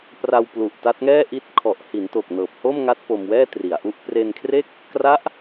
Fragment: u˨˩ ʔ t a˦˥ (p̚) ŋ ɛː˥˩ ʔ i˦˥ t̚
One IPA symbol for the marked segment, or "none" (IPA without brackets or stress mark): t̚